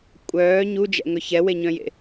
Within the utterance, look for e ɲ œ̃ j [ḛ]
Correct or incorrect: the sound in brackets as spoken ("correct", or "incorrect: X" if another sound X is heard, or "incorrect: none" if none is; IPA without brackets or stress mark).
correct